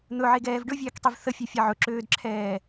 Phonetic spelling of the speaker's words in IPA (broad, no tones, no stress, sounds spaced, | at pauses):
n̪ ɵ ʕ e ɡ ɛː v ɖ ɵ vʲ ɛː k tˤ i v θ ə fʲ ø fʲ ɛ ʕ ɵ ǁ øː d ǁʰ ɛː